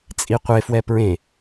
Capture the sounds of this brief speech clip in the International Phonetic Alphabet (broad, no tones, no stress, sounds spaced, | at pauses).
t͡sʼ i qʷ e f w ɛ p ɹ ẽ